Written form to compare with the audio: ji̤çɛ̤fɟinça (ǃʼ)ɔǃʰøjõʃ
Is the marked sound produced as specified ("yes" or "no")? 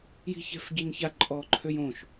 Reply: yes